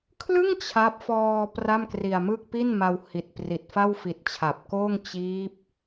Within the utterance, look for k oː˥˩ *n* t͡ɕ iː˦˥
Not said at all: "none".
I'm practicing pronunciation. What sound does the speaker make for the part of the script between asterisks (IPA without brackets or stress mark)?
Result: ŋ